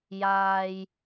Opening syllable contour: low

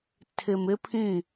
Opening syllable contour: low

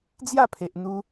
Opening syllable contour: falling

